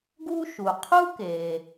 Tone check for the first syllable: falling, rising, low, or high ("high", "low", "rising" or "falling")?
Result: high